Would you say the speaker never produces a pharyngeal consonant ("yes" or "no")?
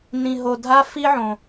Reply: no